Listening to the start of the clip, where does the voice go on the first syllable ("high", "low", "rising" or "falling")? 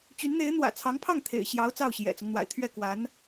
rising